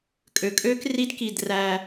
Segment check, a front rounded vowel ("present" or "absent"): present